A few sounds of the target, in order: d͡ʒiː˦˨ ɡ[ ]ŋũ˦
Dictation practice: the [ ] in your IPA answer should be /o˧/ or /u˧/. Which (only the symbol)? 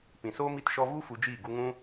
u˧